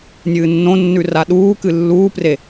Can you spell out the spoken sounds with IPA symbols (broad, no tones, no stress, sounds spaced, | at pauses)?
nʲ ɨː nː õ nː ʉ r a ɗ uː k ɨ lː uː p r e